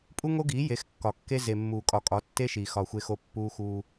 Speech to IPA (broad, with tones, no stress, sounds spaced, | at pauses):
pʼ u˦ ŋ o˦ ɡ iː˨˦ j e˨˦ x kː ɒ˨ kː e˦ z e˨ mː uː˨ kʼ ɒ˨ kʼ ɒ˨˦ tː e˦ ʃ iː˨ x ɒ˨ xʷ e˨ x o˨ pː uː˦ x uː˦